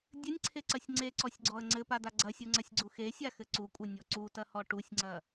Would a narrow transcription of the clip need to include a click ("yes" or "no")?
yes